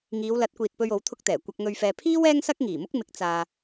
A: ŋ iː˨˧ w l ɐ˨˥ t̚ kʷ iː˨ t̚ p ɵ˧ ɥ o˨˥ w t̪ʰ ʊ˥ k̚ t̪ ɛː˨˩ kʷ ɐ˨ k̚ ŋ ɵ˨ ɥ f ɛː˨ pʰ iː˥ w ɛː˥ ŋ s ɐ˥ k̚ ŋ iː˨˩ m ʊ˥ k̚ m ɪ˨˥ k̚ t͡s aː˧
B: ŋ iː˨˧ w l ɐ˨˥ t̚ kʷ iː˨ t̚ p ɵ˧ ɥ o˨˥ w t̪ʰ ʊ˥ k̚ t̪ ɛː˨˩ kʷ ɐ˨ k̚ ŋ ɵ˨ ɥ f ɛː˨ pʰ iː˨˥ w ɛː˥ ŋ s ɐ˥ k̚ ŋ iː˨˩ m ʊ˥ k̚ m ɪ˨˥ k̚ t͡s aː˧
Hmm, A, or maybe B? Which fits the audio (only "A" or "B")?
A